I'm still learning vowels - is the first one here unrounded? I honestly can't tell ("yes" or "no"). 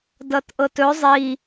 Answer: yes